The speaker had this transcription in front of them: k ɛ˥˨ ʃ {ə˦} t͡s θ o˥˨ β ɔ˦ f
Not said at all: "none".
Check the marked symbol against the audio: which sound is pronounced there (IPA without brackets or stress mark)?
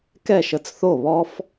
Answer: ə˦